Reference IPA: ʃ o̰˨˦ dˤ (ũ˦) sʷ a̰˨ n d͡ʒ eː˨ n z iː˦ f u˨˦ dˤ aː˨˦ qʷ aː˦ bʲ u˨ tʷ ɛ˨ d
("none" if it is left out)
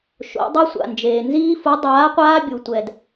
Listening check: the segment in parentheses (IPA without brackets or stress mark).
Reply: u˦